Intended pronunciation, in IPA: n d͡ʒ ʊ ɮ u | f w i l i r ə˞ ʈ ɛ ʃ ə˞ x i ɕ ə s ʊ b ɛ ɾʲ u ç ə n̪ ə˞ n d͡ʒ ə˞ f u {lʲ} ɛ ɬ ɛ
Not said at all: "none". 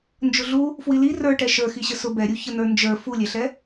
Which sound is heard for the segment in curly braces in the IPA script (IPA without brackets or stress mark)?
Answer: lʲ